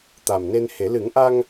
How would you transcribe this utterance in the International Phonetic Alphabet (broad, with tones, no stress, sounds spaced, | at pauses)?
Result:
t̪ a˨˩ m n e˧ n h e˨˩˦ l ɨ˨˩˦ ŋ ʔ a˧ ŋ